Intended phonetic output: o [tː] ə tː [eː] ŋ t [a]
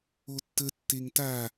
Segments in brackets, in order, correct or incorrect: correct, incorrect: e, correct

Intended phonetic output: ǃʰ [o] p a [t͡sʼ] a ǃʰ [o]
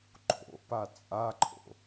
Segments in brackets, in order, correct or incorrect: incorrect: o̰, correct, incorrect: o̰

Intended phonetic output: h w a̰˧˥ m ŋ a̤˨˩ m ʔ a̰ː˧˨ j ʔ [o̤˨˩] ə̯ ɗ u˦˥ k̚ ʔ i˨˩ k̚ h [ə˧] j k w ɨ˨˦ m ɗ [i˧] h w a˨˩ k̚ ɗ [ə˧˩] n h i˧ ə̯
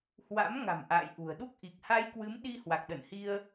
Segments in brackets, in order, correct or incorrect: incorrect: ṳ˨˩, incorrect: a˧, correct, correct

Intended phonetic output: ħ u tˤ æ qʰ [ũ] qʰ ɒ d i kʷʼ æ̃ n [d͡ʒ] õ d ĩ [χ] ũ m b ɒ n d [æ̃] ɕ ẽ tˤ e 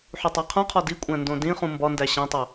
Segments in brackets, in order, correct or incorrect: correct, incorrect: d, correct, incorrect: æ

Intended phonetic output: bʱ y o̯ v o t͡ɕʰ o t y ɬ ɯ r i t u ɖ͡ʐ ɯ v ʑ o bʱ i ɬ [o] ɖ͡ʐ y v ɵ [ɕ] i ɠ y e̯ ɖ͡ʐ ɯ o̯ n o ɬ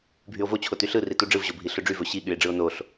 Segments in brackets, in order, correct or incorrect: incorrect: ɵ, correct

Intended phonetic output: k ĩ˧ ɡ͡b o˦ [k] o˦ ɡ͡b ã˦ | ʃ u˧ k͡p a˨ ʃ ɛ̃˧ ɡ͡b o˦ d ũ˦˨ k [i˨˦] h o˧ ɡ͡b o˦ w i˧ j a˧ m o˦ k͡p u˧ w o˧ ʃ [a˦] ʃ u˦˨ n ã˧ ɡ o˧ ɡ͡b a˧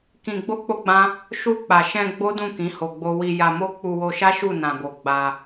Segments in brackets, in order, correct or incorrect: incorrect: k͡p, incorrect: ĩ˨˦, correct

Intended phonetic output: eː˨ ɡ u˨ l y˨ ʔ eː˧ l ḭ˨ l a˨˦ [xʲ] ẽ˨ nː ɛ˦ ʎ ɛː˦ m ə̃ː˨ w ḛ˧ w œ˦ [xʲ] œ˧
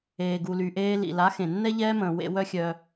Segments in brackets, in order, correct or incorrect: incorrect: x, correct

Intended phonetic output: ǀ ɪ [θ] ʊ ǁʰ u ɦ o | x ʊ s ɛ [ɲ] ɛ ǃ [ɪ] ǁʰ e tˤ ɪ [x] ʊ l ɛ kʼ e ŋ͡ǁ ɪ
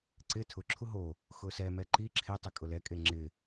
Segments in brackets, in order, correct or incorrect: incorrect: tʰ, incorrect: m, incorrect: i, incorrect: kʼ

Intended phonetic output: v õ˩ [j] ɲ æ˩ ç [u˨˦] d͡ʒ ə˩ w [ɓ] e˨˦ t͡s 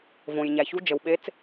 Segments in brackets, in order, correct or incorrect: correct, correct, correct

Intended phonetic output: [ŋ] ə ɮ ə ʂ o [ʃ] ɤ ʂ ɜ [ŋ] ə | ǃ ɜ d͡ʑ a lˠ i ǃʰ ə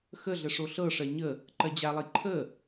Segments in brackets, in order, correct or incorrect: incorrect: x, incorrect: ɬ, incorrect: ɲ

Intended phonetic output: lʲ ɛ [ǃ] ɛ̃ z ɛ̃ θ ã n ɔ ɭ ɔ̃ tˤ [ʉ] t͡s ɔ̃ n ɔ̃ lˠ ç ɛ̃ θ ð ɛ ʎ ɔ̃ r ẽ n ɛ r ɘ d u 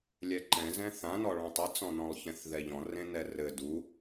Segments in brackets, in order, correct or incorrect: correct, incorrect: ɨ

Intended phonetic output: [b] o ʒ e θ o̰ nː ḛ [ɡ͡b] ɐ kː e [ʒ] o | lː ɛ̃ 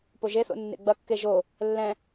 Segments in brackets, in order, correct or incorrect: incorrect: p, correct, correct

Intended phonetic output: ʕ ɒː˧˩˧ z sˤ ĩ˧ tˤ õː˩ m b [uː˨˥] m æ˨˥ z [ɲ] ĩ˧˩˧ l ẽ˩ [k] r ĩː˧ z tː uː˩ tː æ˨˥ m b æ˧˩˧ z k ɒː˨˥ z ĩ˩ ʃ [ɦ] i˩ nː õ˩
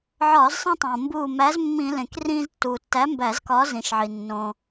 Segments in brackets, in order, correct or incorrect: incorrect: uː˧˩, incorrect: mː, correct, incorrect: ʕ

